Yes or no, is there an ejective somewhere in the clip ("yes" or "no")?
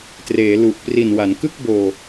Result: no